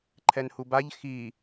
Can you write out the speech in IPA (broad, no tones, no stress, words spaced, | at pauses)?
ǃʰɛnhubaʎ xi